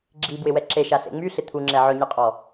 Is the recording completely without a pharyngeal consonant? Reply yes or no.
no